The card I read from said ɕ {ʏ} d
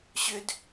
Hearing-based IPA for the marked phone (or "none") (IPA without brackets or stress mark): ʏ